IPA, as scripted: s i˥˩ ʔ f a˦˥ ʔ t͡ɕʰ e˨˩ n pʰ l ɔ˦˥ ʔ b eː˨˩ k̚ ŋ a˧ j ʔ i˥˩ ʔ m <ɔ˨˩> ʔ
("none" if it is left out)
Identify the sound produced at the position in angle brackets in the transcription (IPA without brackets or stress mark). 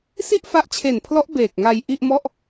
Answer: ɔ˥˩